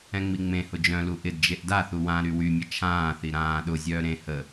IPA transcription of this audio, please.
ɛ̃ ŋ͡m i ŋ͡m ẽ h ʊ d͡ʒ œ̃ l u ʔ ɪ d d͡ʒ e ʔ d a θ u w ã ɾ y w y mʲ ə t͡ʃʰ ãː θ i ɾ ãː ɗ ʊ zʲ œː ɾ ẽ h ə

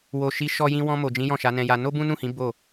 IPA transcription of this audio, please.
w o˨ ʃ i˨˦ ʃ ɔ˧ j ĩ˧ w ɔ̃˧ m o˨ d͡ʒ ĩ˨˦ j ɔ̃˦˨ ʃ a˨˦ n ɛ̃˧ j a˧ n o˦ b ũ˦ n ũ˦˨ h ĩ˨˦ b o˦˨

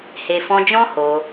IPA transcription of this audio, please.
h e˨ f ɔ̃˧ d͡ʒ ɔ̃˦ h o˧

